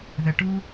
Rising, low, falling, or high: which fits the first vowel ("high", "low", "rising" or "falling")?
low